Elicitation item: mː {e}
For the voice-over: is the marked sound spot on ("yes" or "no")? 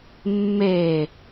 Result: yes